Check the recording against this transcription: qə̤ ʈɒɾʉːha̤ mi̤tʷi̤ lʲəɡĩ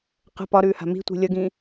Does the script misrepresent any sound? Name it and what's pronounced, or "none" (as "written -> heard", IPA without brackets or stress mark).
ʈ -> p